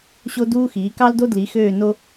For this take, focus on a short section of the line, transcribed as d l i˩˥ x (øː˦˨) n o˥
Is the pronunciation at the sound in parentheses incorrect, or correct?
correct